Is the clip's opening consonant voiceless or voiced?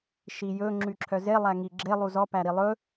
voiceless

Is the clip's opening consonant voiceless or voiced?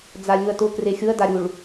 voiced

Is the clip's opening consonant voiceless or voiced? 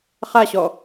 voiceless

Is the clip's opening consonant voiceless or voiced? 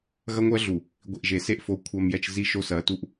voiced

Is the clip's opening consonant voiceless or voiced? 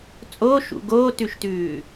voiceless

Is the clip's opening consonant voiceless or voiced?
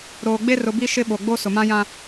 voiced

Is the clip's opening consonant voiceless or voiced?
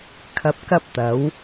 voiceless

